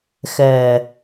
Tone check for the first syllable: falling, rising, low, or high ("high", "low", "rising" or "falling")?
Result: low